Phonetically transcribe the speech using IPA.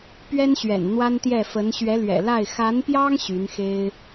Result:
pɥɛ˥nɕɥɛ̰˨˩n n̪wa˥nt̪jɛ˥˩fə˧˥n ɕɥɛ˧˥lɥɛ̰˨˩la˥˩ɪ̯ xa˧˥npjɑ˥ŋ ɕy˧˥nxe˥ɪ̯

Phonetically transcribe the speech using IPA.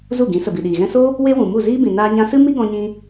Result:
zu˦˨ɡĩ˨˦ sə˨bi˨ɗiː˨ɣɛ̃˦ so˦ | we˦wũ˨ mu˦˨ziː˦bĩ˨ naː˧ɲã˧sɨ˦ mi˦ɡɔ̃˧ɲĩ˧

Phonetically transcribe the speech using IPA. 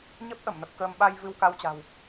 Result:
ɲə˦˥p̚ʔə˧˩mnə˨˩p̚ kəː˧m ɓa˧j vɨ˧wka˧wt͡ɕa̤˨˩w

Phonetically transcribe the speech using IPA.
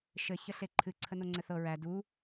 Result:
ʃɘ çəɬeǃʰɨ ǀʰənoŋ͡ǀɘθɤ ɹæ du

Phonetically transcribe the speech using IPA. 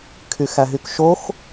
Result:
kʰyxæɦykʃox

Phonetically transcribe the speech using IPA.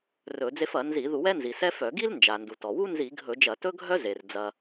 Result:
rɵ˧˩˧d͡ze˥f ɐ˧˩˧nzi˧˩˧ ðu˧˩˧wɛ˥nzi˩ sɛ˥fœ˧˩˧ ɡi˥lnd͡ʒa˩ndu˩ tɔ˩wu˥ nzi˧˩˧ ɡʱɵ˧˩˧d͡ʒɐ˧˩˧tɵ˥ɡʱœ˥ ze˩r d͡zɐ˩

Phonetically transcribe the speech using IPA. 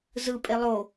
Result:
zɯpʼe lˠo

